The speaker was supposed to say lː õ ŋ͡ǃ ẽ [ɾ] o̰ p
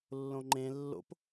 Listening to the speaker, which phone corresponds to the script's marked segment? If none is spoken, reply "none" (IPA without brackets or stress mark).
lː